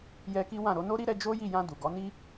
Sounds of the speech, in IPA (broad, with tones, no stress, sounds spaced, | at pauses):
j ɛ˧ k i˦ w ã˦˨ ɾ o˧ n o˦ ɾ i˦ ɾ ɛ˧ d͡ʒ o˦ j i˦˨ j ã˧ d u˨ ɡ ɔ˨˦ n i˦